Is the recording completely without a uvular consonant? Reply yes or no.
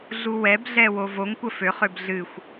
no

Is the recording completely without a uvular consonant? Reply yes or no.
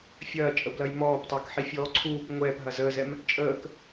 yes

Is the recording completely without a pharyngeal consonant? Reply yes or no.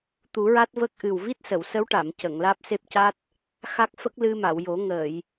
yes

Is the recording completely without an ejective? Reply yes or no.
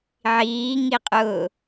no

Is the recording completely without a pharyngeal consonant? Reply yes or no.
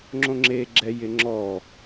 yes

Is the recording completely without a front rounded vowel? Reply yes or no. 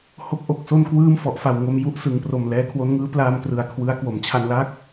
yes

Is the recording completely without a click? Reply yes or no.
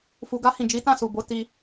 yes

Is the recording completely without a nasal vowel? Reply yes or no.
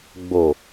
yes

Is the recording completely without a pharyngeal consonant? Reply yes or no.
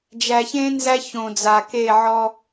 no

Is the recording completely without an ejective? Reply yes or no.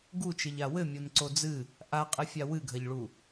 no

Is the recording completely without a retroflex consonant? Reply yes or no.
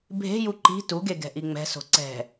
yes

